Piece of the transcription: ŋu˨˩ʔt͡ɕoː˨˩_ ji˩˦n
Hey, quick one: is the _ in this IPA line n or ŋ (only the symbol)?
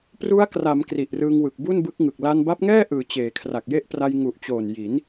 n